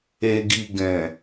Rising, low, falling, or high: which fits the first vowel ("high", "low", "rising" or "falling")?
low